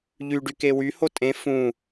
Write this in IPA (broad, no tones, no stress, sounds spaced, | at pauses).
ʎ y ɖ y k e w y h o tʼ ẽ f ũ